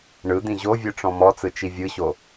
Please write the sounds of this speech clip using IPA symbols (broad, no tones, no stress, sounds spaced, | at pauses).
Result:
ɳ ɯ d̪ ĩ ʑ o vʲ ɯ ʈ͡ʂ ɔ̃ m ɔ t͡s ɯ t͡ʃ i vʲ ɯ ɕ o